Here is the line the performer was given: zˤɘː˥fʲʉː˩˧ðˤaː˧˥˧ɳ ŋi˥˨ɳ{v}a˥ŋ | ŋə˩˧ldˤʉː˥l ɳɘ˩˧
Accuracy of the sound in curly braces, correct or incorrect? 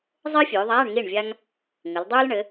incorrect